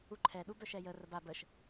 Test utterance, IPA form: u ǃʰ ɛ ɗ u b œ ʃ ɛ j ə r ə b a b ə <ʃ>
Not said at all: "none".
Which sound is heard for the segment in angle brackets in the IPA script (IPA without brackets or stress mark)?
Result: ʃ